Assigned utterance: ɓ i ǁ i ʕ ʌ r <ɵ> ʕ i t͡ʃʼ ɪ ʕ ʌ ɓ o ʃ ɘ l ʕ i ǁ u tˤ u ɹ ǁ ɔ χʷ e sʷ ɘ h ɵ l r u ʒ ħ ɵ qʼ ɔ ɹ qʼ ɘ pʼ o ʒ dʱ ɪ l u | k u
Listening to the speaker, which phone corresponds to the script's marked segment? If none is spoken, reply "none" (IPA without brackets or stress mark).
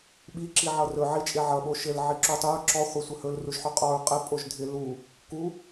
ɵ